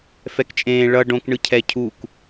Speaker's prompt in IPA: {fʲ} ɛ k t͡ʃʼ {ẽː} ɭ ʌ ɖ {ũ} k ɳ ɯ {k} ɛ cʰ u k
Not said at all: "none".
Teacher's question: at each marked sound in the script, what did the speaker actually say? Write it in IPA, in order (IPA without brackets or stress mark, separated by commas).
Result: f, ẽː, õ, cʰ